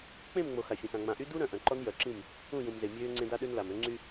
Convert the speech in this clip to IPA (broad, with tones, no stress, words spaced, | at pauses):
k͡pẽ˦˨mŋ͡mo˨ xa˨fʲœ̃˨sã˨ ŋ͡mã˨ʔy˦ du˦ɾœ̃˨ ʔœ̃˨ǃɔ˦n jœ˨ǁĩ˦˨m | ũ˦˨jũ˨mze˨ mʲøː˦ŋ͡ǀẽ˦d a˦ɗø˦nla˨m ø˦ŋ͡ǀy˦